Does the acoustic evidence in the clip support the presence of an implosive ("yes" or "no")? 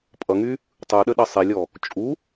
yes